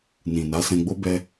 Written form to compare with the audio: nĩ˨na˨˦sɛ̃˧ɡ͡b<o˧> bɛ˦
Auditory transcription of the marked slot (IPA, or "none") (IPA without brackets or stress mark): o˦